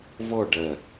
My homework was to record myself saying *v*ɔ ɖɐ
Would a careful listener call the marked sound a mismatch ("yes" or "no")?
no